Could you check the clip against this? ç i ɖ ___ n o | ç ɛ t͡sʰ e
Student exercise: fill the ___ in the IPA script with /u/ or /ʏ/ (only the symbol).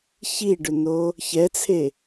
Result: ʏ